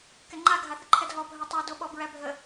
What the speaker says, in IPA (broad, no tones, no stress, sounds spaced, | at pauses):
k ɛ ŋ͡ǃ a ɡʱ a θ ə ǃʰ ɛ d ɦ ɔ bʱ œ tˤ a d o ɓ ɔ b ɹ æ bʱ ə